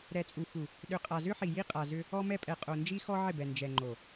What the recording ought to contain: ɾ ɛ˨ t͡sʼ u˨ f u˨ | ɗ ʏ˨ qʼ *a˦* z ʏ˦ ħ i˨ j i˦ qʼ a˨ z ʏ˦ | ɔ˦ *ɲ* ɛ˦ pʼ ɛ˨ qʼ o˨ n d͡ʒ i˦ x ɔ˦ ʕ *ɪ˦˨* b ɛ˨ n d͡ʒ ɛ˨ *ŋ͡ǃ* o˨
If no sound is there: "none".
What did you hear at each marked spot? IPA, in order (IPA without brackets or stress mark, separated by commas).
a˨, m, ɪ˦˨, ŋ͡ǃ